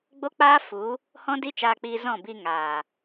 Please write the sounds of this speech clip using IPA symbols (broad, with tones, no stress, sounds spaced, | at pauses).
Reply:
ɡ͡b o˦ k͡p aː˦ f u˨˦ | h ɔ̃˦ d i˦ t͡ʃ aː˧ k͡p iː˧ z ɔ̃˦˨ b i˧ ŋ aː˨